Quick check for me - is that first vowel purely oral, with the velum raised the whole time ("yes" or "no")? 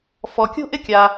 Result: yes